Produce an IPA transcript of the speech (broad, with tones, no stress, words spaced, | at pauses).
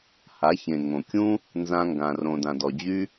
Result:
ha˨˦çẽ˨ ŋõ˨kʲũ˦ | nzã˧ŋɡã˨ rõ˨dã˨dɔ˨d͡ʑy˦